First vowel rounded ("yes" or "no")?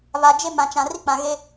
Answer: no